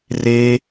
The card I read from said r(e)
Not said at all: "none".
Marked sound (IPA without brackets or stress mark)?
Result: e